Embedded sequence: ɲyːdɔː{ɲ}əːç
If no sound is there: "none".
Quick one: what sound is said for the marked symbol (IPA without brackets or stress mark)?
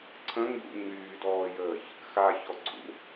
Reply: j